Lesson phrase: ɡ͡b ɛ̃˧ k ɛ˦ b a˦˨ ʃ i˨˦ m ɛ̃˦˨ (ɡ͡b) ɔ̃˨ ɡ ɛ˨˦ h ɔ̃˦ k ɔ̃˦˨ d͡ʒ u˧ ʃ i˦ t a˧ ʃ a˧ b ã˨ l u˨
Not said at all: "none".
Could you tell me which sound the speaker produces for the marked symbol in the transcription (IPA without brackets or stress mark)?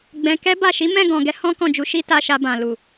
ɡ